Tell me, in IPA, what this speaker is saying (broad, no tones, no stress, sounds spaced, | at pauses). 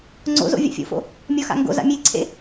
ŋ͡ǀ o̰ z o̰ vʲ a̰ fʲ o̰ f o̰ | mʲ ɔ x a̰ ŋ ɡ o̰ z a̰ mʲ e ǀʰ ḛ